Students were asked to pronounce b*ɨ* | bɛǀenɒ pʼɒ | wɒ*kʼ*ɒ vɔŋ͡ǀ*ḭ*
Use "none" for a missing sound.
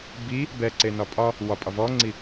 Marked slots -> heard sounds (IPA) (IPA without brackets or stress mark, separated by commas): i, pʼ, i